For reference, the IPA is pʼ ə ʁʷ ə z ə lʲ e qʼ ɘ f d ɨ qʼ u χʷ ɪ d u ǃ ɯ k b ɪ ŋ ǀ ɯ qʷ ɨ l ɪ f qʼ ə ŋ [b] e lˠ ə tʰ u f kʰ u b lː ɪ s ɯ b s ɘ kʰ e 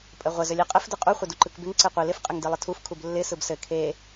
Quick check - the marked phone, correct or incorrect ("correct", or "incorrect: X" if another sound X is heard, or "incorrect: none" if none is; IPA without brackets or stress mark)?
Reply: incorrect: d